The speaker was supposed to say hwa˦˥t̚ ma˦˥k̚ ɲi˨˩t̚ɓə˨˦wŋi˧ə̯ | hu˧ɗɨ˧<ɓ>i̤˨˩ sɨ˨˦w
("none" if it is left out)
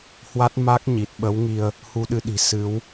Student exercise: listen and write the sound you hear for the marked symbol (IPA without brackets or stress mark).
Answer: ɗ